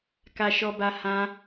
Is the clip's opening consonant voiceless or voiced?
voiceless